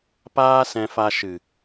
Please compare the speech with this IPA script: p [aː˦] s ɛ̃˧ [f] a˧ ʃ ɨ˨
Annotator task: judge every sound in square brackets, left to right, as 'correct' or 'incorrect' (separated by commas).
correct, correct